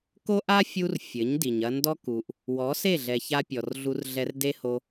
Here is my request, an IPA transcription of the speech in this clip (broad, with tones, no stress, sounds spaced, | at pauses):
k o˦ ʔ a˦ fʲ u˧ r fʲ ɘ˨˦ ɲ d i˨ ɲ ɐ˧ n d ɔ˦ k u˨ ʔ | w ɔ˨˦ s e˦˨ ɮ ɛ˨ ç a˧ pʲ ɔ˨ r ɮ u˧ r ɮ ɛ˧ r d e˦ h o˧